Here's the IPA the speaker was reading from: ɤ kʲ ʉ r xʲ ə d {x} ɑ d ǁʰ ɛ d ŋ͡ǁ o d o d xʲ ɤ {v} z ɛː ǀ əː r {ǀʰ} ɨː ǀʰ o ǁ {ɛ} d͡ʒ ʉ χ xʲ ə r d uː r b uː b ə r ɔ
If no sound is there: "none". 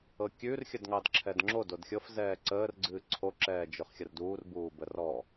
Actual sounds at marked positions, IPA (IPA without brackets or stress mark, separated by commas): ŋ, f, ɡ͡ǀ, ɛː